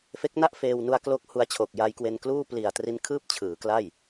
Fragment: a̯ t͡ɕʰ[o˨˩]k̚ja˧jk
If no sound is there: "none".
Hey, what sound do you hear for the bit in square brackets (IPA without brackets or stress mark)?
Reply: o˨˩